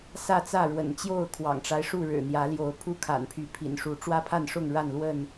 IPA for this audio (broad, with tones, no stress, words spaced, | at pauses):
sä˥˨t͡sä˥˨ɻwə̰˨˩n t͡ɕjo˥˨ʊ̯ kʰwɑ̰˨˩ŋʈ͡ʂa˦ɪ̯ʂu˥˨ ɻɻ̩˨˩n̪jä˨˦ljo˨˦ʊ̯pʰu˦ kʰa̰˨˩npʰy˨˦pʰḭ˨˩nʂu˨˦ ʈ͡ʂwä˦pʰa˥˨nʂʊ˥˨ŋ ɻa˥˨nlwə˥˨n